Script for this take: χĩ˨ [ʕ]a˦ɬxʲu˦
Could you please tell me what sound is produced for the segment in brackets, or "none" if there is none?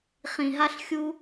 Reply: ɦ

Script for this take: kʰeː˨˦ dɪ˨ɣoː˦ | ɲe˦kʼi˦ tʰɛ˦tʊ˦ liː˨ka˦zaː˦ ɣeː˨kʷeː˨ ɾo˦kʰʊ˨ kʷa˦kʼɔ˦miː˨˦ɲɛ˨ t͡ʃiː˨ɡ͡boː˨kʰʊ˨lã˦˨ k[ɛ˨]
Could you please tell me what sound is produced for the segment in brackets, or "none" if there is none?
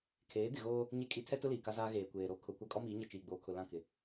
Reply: ɪ˨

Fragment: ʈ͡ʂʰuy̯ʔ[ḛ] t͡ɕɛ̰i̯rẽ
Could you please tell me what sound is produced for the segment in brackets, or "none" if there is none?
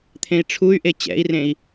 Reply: e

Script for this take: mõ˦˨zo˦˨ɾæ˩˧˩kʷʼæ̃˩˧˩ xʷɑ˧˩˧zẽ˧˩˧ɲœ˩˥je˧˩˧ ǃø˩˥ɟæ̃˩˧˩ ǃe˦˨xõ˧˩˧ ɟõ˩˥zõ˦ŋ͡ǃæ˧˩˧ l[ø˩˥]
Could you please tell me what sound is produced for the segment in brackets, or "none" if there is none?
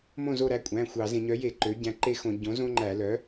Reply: œ˩˥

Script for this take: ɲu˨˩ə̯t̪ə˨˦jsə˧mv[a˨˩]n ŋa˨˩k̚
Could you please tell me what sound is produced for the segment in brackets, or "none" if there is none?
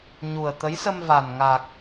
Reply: a˨˩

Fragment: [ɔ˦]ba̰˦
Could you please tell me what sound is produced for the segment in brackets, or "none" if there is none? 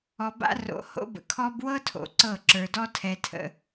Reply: ɔ˨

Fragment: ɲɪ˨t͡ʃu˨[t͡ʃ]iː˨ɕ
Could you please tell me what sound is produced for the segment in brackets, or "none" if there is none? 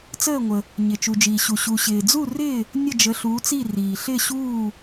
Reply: d͡ʒ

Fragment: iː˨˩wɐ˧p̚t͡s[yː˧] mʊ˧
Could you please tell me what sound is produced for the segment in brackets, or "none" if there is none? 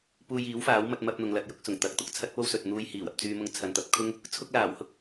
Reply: yː˧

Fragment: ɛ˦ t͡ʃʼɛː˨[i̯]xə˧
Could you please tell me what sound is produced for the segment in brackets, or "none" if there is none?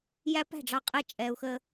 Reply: u̯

